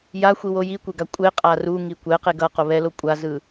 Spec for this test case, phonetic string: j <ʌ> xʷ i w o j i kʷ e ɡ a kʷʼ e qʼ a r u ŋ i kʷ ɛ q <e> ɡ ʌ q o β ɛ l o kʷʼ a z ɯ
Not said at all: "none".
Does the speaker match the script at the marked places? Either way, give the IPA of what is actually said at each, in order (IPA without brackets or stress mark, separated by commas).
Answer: a, e